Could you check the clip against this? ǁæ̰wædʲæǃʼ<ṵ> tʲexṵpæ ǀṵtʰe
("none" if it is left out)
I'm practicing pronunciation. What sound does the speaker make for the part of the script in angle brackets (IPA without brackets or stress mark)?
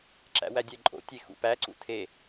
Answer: o̰